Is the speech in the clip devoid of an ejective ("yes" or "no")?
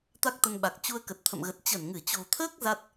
yes